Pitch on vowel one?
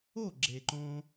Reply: falling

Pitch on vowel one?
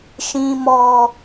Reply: low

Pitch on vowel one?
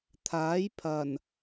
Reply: rising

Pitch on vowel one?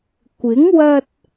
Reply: rising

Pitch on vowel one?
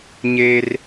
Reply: high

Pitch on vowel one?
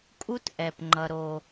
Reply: high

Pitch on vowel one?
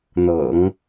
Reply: low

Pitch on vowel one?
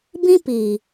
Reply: high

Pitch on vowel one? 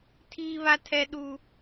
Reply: high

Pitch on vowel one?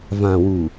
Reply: low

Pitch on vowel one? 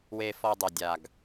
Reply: low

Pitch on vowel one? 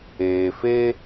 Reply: low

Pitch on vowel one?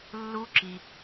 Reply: high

